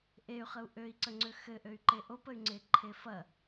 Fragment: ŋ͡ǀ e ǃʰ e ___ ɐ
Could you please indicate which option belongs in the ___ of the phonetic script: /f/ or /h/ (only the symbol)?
f